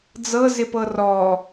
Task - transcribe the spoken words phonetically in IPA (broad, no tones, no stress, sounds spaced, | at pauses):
d͡z ɤ z ɪ p ɤ r ɔ